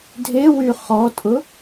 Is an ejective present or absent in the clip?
present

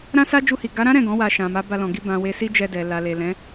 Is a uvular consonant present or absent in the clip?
absent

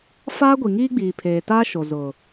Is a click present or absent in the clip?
absent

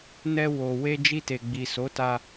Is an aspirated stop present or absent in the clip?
absent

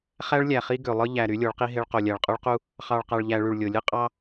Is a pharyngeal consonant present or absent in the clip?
absent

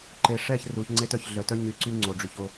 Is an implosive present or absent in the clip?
absent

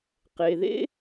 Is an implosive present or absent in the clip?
absent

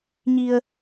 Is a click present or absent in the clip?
absent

